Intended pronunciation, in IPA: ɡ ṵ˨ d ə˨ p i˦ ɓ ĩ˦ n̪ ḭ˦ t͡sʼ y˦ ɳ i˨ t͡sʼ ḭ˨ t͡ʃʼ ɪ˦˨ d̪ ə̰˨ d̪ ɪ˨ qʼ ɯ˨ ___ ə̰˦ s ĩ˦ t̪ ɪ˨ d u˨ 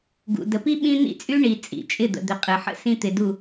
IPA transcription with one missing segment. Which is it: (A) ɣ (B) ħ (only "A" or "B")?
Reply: B